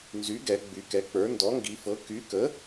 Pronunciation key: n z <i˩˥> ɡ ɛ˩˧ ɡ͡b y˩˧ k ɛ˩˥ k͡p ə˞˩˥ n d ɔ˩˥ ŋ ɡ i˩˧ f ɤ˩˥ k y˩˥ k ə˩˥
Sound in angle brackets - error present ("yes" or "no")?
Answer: yes